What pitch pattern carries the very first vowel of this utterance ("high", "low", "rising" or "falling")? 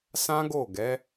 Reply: high